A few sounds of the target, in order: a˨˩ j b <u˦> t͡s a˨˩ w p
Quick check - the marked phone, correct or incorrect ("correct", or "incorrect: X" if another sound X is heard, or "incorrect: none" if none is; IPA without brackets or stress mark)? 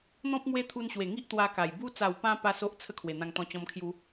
correct